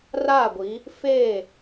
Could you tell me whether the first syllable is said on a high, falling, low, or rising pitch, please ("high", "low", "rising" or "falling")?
falling